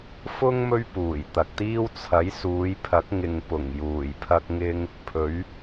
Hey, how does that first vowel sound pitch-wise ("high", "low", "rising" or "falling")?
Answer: high